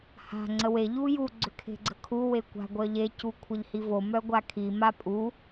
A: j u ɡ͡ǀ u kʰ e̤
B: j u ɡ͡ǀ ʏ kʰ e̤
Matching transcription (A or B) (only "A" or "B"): B